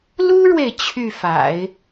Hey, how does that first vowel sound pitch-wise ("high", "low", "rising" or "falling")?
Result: high